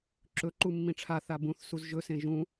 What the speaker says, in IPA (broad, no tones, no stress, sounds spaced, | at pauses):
ǁ ɵ ǃ u mː ĩ ʈ͡ʂʰ a θ a b ũ θ s u z ʒ ɵ s ẽ ʒ ũ